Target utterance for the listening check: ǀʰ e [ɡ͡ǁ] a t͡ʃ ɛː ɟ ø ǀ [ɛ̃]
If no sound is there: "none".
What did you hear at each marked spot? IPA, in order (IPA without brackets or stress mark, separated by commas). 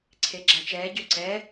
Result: ɡ͡ǁ, ɛ